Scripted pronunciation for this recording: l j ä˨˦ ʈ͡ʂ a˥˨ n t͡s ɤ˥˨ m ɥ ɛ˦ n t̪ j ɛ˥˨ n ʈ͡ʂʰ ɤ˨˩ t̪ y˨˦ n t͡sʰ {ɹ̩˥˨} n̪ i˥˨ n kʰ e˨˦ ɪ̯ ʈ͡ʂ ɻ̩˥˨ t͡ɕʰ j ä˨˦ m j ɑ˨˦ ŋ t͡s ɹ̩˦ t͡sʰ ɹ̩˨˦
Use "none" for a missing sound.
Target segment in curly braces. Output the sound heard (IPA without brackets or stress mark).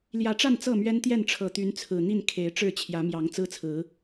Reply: ɹ̩˨˩